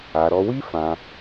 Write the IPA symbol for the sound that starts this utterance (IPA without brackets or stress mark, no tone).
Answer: a